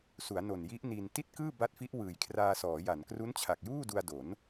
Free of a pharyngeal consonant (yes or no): yes